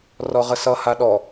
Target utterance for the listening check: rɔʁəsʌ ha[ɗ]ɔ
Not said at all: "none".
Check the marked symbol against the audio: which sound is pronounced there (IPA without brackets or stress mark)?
ɗ